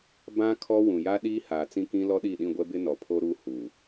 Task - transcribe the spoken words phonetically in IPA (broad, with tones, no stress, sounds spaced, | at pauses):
b ã˦ kʰ ɔ˦ w ũ˨ j a˦ ɗ iː˦ h aː˨ t͡s ĩ˦ k ĩ˦ l ɔ˦ ɗ i˦˨ ɗ ĩ˦˨ ɡʷ ɛ˦ b ɪ˦ n ɔ˨ pʰ o˦ ɾ uː˦ h uː˨